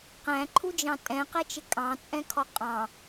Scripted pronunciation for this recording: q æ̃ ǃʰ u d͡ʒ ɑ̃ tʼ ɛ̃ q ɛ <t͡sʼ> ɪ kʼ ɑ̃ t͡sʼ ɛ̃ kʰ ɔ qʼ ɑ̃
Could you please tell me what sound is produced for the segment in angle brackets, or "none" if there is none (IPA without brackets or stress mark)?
t͡ʃ